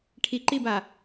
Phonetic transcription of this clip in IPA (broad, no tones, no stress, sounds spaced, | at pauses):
ʈʰ i ǃ i b a